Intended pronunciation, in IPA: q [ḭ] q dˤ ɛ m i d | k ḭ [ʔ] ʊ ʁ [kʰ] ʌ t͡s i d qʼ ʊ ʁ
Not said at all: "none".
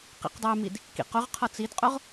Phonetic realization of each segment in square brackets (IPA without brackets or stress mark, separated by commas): ḭ, q, qʰ